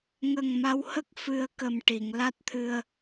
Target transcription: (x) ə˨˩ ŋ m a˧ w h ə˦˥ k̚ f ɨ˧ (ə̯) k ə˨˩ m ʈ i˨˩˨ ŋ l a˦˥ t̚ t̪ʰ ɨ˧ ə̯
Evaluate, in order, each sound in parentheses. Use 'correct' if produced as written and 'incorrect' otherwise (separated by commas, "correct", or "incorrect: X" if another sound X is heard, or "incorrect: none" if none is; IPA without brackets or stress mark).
incorrect: ŋ, correct